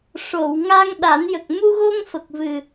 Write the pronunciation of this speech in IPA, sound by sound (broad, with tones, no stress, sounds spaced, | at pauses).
ʂ o˨˩˨ w ŋ a˧ ŋ ɗ a˨˩˦ n j ə˨˩ k̚ m u˧ ɣ o˧ ŋ f ə˨˩ k̚ v ɨ˨˩